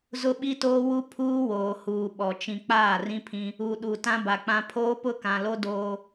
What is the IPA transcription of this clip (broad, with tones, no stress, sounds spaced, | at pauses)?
z ʊ˦ ɓ i˦ t oː˦ w u˦ pʰ uː˦ w oː˨ h uː˨ ɓ ɔ˨ t͡ʃ ĩ˨ k͡p aː˦˨ r ĩ˦ pʰ ĩ˦ | u˨ ɗ u˨ t ã˦ b a˨ k͡p ã˦ pʰ oː˦ p ʊ˦ k ã˨ l o˦ d oː˦